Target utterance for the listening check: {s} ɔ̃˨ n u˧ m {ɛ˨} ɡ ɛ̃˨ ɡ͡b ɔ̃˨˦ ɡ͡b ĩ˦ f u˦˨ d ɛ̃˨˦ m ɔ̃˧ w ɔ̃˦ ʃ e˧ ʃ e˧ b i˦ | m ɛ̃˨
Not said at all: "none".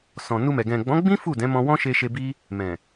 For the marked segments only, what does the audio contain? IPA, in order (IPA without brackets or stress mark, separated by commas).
s, ɛ˨